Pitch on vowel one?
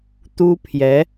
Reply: high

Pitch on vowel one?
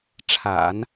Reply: low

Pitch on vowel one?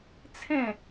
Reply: falling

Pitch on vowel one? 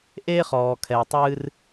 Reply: high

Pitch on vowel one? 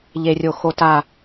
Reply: high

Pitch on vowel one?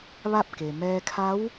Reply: falling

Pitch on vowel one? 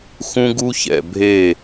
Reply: high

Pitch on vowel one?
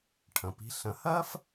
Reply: low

